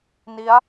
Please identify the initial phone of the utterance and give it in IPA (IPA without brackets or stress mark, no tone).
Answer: n